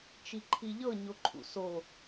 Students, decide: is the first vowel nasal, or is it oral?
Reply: oral